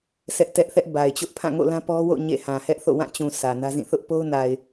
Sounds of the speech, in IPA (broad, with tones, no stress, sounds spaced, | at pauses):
sʰ ɛ˦ ʔ t ɛ˦ ʔ θ ɛ˦ ʔ b a˨ ɪ̯ t͡ɕ ʊ˦ ʔ pʰ ã˦˨ ŋ o̰˦˨ l ã˦ p ɔ˦ w o̰˦˨ ɲ ḛ˦˨ h ã˨ h ɛ˦ ʔ θ o̰˦˨ w ã˦˨ t͡ɕ ũ˨ s ä˨ n ä˦ z ĩ˦˨ θ ʊ˦ ʔ p o˦ ʊ̯ n a˨ ɪ̯